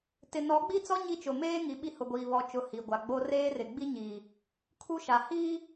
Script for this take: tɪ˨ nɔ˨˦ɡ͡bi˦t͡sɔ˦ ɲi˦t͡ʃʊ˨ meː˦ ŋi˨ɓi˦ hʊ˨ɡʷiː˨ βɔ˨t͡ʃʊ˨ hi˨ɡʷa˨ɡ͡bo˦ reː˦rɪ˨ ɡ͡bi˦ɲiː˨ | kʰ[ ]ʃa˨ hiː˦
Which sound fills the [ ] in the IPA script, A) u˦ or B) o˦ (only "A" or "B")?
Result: A